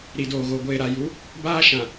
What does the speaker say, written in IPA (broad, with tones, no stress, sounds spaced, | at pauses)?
ɾ i˨ d oː˨ ɣ o˨ ɡʷ eː˨ ɾ a˨ j u˨˦ | b aː˦ ʃ ã˨